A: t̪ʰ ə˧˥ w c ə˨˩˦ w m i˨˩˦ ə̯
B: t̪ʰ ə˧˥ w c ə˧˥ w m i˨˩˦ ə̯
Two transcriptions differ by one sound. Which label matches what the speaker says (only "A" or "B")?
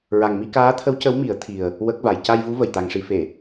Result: B